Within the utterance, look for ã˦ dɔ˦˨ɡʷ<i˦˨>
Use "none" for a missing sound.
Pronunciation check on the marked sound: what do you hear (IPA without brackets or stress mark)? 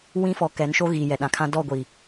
i˨